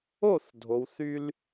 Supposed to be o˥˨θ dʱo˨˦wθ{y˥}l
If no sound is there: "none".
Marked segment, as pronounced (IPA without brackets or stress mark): y˥